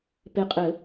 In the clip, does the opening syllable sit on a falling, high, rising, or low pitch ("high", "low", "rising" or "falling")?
low